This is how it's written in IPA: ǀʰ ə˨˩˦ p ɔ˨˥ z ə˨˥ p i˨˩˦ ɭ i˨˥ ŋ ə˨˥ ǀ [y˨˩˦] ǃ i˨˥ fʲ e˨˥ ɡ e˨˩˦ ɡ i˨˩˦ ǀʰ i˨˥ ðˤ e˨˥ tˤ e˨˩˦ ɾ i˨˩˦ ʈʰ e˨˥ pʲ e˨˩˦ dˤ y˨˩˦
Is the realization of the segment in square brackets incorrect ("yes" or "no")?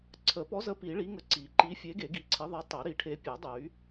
yes